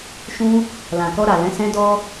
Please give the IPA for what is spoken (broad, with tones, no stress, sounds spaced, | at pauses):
ʃ ũ˧ | l ã˨ k ɔ˧ ɾ a˨ l ɛ̃˨˦ s ɛ̃˧ d ɔ˦